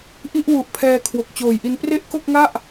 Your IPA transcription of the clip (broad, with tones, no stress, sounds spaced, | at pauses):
ʔ i˥˩ ʔ w u˨˩ ʔ pʰ ɛː˧ kʰ w o˨˩ k̚ t͡ɕ oː˨˩ j ʔ i˧ n p r e˥˩ ʔ k o˥˩ k̚ ŋ a˥˩ ʔ